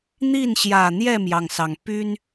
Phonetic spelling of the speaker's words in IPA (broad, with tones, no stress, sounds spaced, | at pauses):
n̪ i˥˨ n ɕ j ä˨˩ n̪ j ɛ˥˨ m j ɑ˩ ŋ s ɑ˩ ŋ p y˦ n